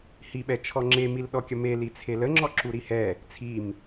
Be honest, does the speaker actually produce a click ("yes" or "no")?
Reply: yes